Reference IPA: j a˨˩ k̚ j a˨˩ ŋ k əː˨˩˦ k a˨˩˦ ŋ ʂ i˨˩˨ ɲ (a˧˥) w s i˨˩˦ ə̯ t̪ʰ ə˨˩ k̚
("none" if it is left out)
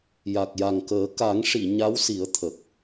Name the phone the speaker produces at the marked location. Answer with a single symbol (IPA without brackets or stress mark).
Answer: a˧˥